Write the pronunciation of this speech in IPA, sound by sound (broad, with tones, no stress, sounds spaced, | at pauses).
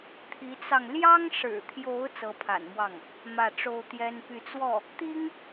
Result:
t̪ʰ i˧˥ t͡s ɑ˧ ŋ l j ɑ˥ ŋ ʂ ɻ̩˨˩ t̪ʰ j o˧˥ ʊ̯ t͡s ɤ˧˥ pʰ a̰˨˩ n m w ɑ˥˩ ŋ | m ä˥˩ ʈ͡ʂ o˥ ʊ̯ t̪ j ɛ˥ n p y˥˧ t͡s w ɔ˥˩ | t̪ i˥ ŋ